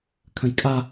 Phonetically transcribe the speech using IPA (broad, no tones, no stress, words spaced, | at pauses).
kʰə̃jkʼa